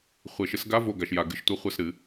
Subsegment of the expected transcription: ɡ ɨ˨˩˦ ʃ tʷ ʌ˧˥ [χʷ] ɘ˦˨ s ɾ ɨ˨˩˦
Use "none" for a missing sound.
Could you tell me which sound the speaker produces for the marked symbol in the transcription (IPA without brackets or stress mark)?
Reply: χʷ